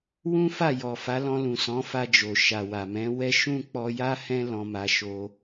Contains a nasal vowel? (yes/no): yes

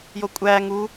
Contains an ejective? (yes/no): yes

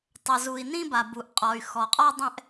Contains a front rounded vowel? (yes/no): yes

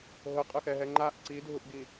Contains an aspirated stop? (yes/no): no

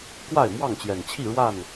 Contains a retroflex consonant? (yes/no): yes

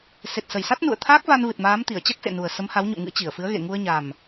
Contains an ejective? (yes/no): no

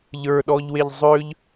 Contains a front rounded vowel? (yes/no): yes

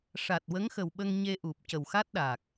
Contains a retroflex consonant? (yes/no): yes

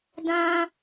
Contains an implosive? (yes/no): no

